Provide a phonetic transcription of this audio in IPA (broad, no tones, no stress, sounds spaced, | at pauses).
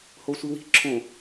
h o sʷ i w i̤ ǁʰ õ